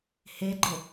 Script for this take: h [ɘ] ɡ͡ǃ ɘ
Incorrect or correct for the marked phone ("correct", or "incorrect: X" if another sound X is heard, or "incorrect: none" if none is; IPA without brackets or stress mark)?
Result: incorrect: e